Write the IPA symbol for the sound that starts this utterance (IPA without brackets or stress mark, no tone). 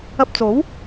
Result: ɐ